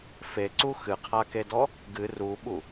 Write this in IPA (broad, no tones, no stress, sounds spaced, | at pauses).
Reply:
f e ǀ u x ɨ qʰ a k e d ɔ | ɡ ɨ r u ɓ u